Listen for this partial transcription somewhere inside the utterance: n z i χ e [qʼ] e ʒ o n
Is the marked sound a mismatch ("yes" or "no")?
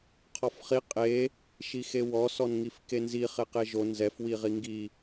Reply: yes